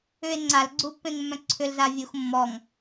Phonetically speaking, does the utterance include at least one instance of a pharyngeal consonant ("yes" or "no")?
no